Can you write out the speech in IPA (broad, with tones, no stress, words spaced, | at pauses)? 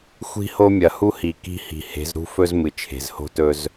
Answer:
xʷi̤˦ho˦ mʲɐ˨hu˦hi˨ ki̤˦hi̤˨ he̤˨˦zɾṳ˦fɵ˦z mɨ˨t͡ʃʰe̤˨zho̤˦tɵ˦z